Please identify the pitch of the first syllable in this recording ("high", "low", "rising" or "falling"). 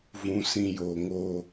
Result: low